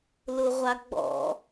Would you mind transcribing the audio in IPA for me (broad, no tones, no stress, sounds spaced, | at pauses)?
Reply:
l ʊ ʁʷ a ɡ͡b ɔ̰